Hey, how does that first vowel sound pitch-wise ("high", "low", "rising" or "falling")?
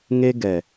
high